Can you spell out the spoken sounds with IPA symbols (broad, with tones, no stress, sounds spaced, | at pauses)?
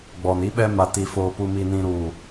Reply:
ɡ͡b ɔ˨ n i˦ ɓ ɛ˦ m a˨ t i˨ f oː˨ p u˨ m i˨ n ĩ˨ ɾ u˨